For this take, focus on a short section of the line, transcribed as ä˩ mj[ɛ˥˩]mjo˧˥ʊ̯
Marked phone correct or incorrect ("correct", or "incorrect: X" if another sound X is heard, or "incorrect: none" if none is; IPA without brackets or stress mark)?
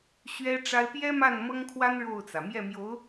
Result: correct